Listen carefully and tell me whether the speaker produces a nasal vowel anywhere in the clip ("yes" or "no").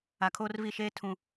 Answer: yes